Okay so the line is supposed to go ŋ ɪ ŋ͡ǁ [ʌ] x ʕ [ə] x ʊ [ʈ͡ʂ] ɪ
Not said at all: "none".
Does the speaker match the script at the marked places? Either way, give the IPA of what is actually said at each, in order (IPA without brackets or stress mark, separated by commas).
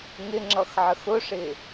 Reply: ʌ, ə, ʂ